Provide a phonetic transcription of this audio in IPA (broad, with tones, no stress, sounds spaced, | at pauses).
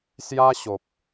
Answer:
s j a˦ ɕ o˨ p̚